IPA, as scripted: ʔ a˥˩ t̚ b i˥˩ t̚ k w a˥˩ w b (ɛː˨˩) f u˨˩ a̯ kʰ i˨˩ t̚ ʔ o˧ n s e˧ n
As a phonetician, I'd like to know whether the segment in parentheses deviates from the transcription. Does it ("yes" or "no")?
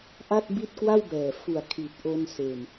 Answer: no